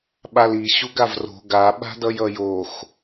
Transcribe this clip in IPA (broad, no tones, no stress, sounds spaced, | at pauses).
ɓ a l i ɕ u ɡ a v r o̤ ɡ a ɓ a̤ d ʌ j ʌ j o x